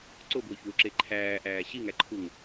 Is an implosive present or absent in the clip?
absent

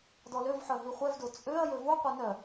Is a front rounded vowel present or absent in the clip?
present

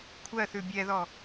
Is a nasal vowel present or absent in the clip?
absent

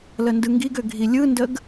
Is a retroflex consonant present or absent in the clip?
absent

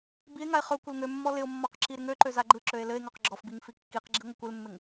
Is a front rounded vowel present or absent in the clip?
present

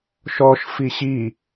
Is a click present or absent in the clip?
absent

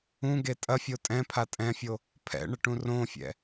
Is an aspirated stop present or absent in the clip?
present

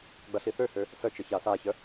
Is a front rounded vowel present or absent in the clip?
present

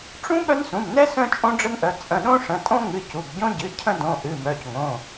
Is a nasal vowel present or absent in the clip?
present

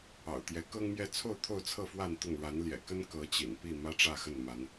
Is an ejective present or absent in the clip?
absent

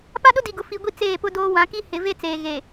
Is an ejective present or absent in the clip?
absent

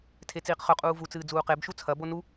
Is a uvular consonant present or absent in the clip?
present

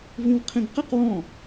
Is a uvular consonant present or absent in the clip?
present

